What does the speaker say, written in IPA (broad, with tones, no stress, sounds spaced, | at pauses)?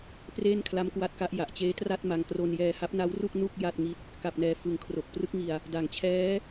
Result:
p r eː˥˩ n kʰ l a˦˥ m k w a˦˥ t̚ k a˦˥ ʔ j a˨˩ ʔ t͡ɕ eː˦˥ t r a˥˩ t̚ m a˧ ŋ k r o˧ n j ɛː˧ h a˦˥ p̚ n a˦˥ w r u˥˩ k̚ n u˥˩ k̚ j a˥˩ t̚ ŋ i˥˩ t̚ | k a˨˩ p̚ n ɛː˨˩ f ɯ˩˦ ŋ kʰ r o˨˩ k̚ p r ɯ˦˥ k̚ ŋ i˧ a̯ | d a˩˦ ŋ t͡ɕʰ ɛː˦˥